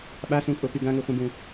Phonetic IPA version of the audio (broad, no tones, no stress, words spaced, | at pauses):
ɓasũkʼopy ɡãŋuχʷĩbũ